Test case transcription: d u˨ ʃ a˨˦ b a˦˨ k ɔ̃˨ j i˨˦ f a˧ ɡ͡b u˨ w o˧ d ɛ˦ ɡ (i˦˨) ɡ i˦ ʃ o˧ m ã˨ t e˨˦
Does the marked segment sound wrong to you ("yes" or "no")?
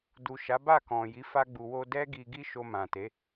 yes